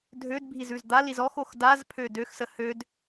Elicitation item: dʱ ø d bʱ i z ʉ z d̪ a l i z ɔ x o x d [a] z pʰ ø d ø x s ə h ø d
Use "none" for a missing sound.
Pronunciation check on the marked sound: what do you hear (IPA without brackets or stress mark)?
a